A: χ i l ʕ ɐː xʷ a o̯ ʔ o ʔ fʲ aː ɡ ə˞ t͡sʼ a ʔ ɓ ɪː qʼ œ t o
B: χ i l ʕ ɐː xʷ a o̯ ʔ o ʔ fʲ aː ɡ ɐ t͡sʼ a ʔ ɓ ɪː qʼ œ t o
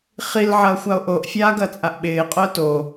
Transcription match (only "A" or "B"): B